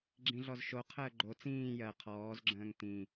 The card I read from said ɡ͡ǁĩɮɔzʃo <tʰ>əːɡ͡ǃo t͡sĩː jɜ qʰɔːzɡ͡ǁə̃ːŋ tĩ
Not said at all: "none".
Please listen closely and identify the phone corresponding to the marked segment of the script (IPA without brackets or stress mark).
qʰ